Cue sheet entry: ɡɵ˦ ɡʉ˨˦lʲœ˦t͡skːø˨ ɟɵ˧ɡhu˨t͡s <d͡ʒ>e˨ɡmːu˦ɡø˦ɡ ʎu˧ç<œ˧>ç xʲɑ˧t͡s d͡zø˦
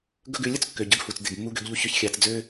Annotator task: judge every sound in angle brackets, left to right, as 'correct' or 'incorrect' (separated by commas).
incorrect, correct